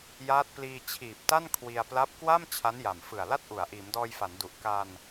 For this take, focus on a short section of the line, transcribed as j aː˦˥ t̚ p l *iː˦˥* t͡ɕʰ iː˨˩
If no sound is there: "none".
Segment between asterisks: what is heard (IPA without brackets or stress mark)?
iː˧